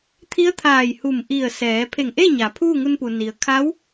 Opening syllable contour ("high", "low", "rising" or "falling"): rising